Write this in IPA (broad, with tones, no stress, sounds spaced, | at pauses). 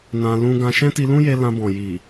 n ã˧ l ũ˧ ɡ ã˧ ʃ ɛ̃˦ t i˧ l ũ˦ j e˧ l ã˧ b ɔ̃˨ j i˨